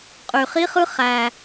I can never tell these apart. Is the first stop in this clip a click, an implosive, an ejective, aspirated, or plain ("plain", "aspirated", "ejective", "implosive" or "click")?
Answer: ejective